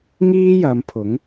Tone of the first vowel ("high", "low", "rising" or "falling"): high